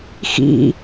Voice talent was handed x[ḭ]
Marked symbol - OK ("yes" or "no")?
yes